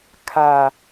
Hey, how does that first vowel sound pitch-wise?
low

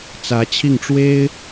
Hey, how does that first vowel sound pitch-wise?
rising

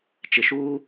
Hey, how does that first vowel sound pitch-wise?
low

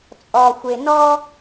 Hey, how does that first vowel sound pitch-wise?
low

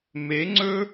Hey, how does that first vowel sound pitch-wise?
rising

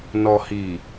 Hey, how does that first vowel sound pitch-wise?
low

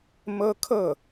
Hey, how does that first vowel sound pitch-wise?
high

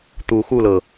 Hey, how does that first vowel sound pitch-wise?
rising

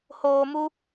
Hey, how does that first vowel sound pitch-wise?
low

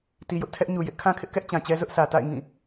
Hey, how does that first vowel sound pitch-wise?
low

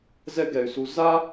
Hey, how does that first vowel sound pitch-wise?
high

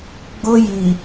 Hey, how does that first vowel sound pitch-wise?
high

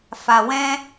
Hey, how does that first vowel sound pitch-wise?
low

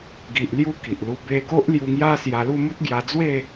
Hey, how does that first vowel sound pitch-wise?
low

